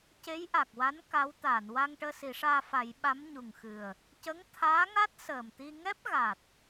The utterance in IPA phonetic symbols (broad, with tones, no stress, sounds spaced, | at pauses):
c e˧˥ j ʔ a˨˩ k̚ w a˧˥ n k a˧˥ w t̪ aː˨˩˨ n w a˧ ŋ ʈ əː˧ s i˨˩˦ ʂ aː˧ f a˨˩˦ j ɓ a˧˥ m ɲ u˨˩ ŋ x ɨ˨˩ ə̯ | c ə˧˥ ŋ t̪ʰ aː˧˥ ŋ a˦˥ t̚ s əː˨˩ m t̪ i˧ ŋ ɛ˦˥ p̚ ɣ a˨˩ t̚